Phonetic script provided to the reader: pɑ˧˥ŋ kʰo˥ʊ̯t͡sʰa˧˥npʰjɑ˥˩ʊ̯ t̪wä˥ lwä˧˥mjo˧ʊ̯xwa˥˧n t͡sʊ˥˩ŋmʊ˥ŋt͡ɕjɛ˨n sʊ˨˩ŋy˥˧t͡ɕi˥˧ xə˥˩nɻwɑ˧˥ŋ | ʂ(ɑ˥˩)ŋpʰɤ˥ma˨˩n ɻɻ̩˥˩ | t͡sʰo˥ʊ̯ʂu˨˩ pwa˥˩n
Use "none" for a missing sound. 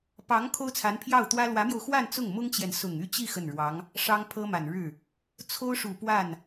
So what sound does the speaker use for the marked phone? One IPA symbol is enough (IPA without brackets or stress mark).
ɑ˥